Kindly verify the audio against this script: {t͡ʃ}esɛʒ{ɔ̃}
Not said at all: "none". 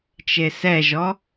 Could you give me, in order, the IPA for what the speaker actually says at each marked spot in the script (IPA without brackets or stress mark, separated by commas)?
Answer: t͡ʃ, ɔ